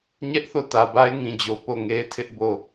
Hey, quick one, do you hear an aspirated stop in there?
yes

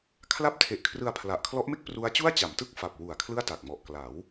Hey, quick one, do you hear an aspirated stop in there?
yes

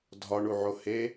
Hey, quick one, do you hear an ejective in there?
no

